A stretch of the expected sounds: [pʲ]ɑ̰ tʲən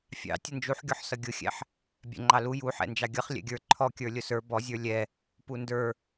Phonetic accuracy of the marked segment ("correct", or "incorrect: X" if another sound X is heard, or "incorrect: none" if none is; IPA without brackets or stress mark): incorrect: fʲ